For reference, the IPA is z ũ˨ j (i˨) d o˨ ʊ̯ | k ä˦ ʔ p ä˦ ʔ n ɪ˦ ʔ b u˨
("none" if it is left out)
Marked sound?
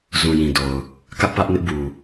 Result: ĩ˨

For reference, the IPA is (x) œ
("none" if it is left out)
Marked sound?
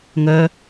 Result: ŋ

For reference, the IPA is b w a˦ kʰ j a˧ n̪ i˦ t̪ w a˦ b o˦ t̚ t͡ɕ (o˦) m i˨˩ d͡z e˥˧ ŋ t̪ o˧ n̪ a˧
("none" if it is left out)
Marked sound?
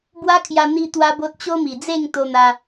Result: o˦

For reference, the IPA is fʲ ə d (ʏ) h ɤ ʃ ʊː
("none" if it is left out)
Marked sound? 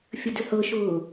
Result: ʏ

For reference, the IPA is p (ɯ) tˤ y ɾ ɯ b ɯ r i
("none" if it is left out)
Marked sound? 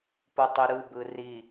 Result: u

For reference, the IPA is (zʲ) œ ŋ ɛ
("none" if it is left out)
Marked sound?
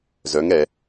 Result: z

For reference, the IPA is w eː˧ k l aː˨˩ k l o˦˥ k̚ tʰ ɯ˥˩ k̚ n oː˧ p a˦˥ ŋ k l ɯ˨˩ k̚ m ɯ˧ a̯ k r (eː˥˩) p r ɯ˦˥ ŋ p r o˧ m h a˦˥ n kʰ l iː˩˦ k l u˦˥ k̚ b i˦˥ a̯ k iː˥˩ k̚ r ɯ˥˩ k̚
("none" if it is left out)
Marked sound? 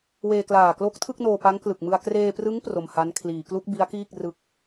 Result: eː˧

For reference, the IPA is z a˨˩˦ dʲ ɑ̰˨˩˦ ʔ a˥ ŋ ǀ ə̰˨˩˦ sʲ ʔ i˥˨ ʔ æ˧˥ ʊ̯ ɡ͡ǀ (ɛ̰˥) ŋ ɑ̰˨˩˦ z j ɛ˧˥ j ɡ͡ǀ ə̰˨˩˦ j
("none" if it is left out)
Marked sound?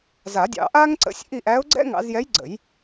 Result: ɛ̰˥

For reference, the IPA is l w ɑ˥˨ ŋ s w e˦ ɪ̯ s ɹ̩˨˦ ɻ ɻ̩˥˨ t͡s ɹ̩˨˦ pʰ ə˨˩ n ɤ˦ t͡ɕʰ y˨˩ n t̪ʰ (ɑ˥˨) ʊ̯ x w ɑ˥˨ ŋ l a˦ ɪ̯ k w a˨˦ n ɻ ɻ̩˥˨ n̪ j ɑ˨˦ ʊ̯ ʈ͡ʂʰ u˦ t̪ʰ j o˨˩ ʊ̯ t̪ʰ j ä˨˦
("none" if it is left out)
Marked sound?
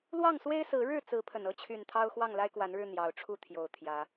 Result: ɑ˦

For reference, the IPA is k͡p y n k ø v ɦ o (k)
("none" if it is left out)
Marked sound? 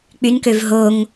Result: ŋ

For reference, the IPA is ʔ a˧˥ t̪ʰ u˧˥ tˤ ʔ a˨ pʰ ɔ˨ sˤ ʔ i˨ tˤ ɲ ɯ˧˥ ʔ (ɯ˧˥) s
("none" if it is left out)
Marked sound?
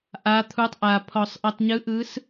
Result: ɯ˧˥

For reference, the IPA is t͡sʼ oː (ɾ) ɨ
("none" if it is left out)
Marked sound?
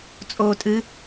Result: tʼ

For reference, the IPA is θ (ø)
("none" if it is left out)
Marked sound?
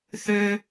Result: ø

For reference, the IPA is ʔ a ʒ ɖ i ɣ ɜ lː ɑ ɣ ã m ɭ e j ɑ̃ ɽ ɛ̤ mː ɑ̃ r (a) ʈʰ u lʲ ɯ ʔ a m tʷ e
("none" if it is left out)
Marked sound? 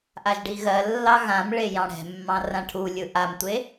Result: ã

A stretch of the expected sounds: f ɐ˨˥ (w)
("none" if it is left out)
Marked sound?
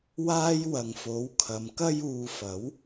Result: w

